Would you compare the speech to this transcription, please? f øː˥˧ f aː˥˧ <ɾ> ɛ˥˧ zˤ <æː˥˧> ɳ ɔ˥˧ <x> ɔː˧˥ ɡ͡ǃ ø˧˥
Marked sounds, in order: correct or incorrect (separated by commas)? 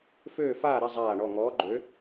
correct, incorrect, incorrect